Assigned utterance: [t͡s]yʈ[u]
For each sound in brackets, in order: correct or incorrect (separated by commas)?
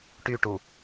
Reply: incorrect, correct